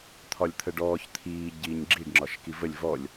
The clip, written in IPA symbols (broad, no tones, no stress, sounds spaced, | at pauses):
t̪ʰ ɒ lʲ t̪ʰ ə ɖ ɔː ç t̪ʰ iː ɟ iː ɲ ɡ͡ǁ i ɖ ŋ͡ǁ ɒ ʃ k i v ə lʲ v ɔ lʲ